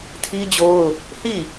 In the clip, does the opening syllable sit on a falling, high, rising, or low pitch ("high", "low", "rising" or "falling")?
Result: high